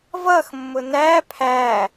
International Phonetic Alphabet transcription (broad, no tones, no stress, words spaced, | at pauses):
vʌx mːʊnæ pʰæ